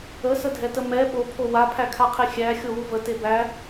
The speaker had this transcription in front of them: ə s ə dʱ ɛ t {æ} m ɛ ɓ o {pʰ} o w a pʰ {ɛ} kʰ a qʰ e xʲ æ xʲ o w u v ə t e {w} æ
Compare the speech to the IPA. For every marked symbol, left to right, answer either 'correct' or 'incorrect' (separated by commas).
incorrect, correct, incorrect, incorrect